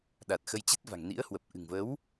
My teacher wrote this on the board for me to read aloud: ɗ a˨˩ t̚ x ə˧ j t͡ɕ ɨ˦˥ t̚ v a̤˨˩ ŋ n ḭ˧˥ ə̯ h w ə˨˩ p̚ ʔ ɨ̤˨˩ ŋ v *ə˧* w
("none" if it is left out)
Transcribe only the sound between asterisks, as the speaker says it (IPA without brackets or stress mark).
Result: ə˨˦